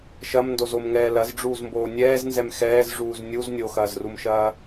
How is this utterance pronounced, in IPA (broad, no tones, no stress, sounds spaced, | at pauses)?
ʃ ɐ m n d o z o m ŋ ɛː l ɐ z ɖ͡ʐ uː z m b oː nʲ ɛː z n z ɛ m x ɛː z ʐ uː z nʲ u z nʲ o x ɐː z r u m ʃ ɐː